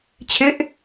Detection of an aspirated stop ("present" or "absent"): present